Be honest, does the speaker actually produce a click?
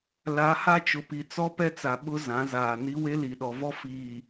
no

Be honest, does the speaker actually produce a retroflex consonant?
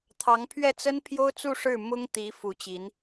yes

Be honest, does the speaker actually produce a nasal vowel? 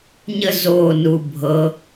no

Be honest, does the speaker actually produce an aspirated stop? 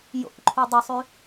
yes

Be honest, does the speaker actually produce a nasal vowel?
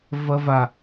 no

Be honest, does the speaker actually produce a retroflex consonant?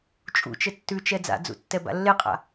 no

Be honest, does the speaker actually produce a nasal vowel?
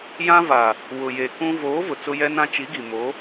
yes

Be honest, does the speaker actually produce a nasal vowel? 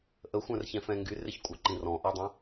yes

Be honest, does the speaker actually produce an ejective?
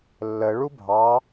no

